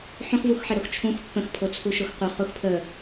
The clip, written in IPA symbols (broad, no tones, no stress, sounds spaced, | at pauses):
ħ õ x v u x ħ ɘ ɾ o x t͡ʃʰ ũ x pː ə̃ x pʰ o t͡sʰ u ʃ o x qʷ ə χ u x pʰ ə